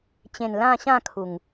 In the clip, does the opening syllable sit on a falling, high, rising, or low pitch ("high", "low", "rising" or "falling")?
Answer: low